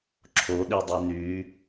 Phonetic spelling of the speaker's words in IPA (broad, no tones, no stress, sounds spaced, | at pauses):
ǁʰ o ɗ i dˤ y n y